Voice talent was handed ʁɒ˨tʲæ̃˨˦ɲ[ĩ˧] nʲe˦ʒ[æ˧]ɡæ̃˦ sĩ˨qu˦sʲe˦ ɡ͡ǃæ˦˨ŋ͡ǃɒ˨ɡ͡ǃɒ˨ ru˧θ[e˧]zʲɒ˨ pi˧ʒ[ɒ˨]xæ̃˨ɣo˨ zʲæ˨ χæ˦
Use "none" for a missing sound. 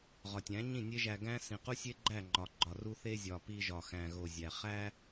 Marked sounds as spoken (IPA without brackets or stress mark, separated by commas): ĩ˦˨, æ˧, e˧, ɒ˨